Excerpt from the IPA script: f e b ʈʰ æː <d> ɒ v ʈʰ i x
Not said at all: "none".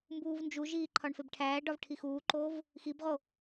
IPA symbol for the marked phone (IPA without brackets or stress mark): ɖ